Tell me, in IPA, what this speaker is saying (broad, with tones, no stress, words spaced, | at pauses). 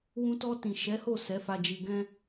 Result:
wũ˧tɔ˧ tĩ˨ʃɛ˨˦ho˦˨ sɛ˨˦fa˧d͡ʒi˧ ɡɛ̃˦